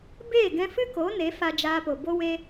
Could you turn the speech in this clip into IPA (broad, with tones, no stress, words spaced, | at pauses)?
beː˦˨ɡɛ̃˧fɨ˦ko˨˦ ne˨˦fa˧d͡ʒaː˧po˨ bo˧we˧